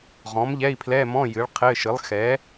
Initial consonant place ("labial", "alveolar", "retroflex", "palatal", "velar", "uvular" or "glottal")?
uvular